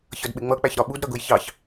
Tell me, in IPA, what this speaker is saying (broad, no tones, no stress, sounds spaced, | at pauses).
ç ʌ d ɓ ɪ ŋ͡m ʌ k͡p æ ç ɾ ɒ ɓ u d ɾ ʌ ɡ ʊ j ç ɑ ç